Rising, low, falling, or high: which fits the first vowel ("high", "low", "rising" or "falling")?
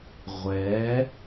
rising